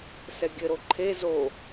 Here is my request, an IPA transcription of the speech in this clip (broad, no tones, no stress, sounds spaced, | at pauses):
s ɛ ɡʲ ɘ ɾ o ǃʰ e z o